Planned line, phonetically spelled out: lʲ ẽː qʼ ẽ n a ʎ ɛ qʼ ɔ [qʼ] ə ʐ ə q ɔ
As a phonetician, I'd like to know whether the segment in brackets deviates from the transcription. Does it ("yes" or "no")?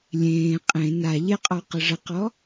yes